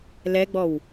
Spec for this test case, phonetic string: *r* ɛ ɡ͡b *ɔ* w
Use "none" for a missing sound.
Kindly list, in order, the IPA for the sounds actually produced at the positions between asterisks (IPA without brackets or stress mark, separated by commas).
l, ɔ